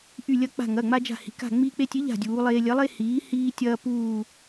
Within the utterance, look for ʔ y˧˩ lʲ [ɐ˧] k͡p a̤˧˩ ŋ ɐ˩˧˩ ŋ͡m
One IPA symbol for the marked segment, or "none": ɐ˧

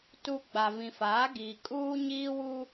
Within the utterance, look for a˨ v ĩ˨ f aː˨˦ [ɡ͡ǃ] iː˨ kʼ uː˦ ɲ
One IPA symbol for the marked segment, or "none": ɡ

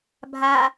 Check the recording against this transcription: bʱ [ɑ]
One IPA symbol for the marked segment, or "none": a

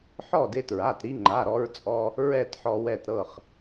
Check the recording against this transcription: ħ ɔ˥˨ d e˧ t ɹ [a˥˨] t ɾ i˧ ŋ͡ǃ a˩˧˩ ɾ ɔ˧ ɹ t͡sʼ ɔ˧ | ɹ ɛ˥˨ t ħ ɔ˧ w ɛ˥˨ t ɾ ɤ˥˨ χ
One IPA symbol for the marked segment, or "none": a˩˧˩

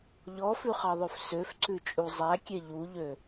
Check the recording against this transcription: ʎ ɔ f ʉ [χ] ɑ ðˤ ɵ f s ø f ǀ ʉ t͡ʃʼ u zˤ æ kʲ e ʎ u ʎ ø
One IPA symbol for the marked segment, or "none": χ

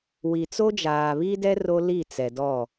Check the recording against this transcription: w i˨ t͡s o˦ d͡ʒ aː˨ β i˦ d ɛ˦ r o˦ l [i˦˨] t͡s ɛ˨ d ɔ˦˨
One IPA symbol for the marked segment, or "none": i˦˨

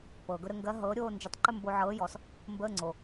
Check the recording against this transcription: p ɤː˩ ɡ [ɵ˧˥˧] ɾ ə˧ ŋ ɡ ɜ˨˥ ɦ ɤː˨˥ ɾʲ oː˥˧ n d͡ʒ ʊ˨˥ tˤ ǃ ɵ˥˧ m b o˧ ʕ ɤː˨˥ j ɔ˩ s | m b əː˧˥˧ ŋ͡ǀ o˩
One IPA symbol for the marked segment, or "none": ɵ˧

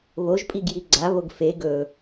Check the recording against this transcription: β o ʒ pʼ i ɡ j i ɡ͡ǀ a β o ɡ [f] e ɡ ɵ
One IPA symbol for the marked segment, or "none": f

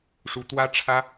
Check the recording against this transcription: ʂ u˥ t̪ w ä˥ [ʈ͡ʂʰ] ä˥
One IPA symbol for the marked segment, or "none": ʈ͡ʂʰ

